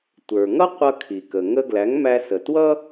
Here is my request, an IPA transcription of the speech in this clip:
tʷ ə˞˩ ŋ ʌ˥ qʷ ʌ˧ kʰ i˩ k ə˩ ŋ ə˧ ɡ l æ˩˥ ŋ m æ˧ s ə˩ t w ʌ˥

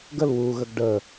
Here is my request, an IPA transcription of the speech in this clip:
ɡ ə l w u ɣ ə ɡ ɖ ə

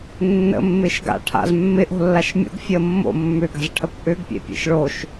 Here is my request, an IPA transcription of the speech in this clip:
nː ə̰ mː ɪː ʃ ɡ a̰ ʈʰ a̰ z mː ɪ ʔ o̤ lː a ʃ mʲ o̰ ɡ fʲ əː mː o̰ mː ʏ ɡ a̤ z ʈʰ ɐ kʷ ʔ ʏ ɡ pʲ ḛ pʲ ḛ ʃ ɭ o ʃ

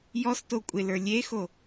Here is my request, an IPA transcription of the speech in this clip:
j ɔ s t o kʷʼ ɪ l ə˞ lʲ e x o

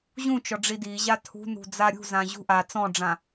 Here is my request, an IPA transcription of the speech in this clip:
ʑ ũ t͡ʃ ɔ ɖ͡ʐ i d i ʑ a tʰ ṳ n ṳ d͡z a ɾʲ ṳ z ã ʑ ṳ ʔ a t͡s ɔ̃ ɖ͡ʐ ã

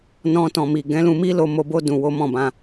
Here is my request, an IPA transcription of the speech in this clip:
n ɔ̃˧ t ɔ̃˨ m i˨ ɡ ɛ̃˨˦ l ũ˧ m i˦ l o˧ m o˧ b o˦ d ũ˧ w o˦ m ɔ̃˦˨ b ã˧

